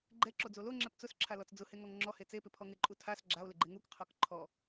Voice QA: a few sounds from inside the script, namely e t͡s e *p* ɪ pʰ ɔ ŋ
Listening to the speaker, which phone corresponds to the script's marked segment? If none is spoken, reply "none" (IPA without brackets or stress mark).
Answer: p